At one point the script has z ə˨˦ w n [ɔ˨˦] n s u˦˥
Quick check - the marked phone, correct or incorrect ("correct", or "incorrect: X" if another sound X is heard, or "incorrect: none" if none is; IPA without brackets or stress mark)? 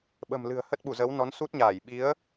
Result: correct